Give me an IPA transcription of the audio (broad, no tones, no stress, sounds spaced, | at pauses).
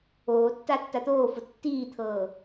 oː tː a tː a t̪ oː f ʊ tː iː t̪ʰ ɤː